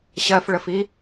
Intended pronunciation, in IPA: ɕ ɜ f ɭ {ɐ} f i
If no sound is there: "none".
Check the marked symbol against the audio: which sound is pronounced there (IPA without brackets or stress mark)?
ə